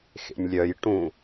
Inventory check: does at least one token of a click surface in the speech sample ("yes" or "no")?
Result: no